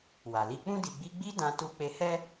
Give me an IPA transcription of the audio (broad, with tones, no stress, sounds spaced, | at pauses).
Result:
w a˨ l i˧ k͡p ũ˦ d i˧ ɡ͡b i˦ ɡ͡b i˦ d ã˦ t u˦ k͡p e˧ h ɛ˦